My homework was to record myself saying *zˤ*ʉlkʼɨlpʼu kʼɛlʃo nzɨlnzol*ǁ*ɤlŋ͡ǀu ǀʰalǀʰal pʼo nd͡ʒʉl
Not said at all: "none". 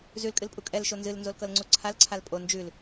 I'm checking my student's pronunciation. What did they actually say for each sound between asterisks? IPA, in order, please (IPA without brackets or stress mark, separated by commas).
z, k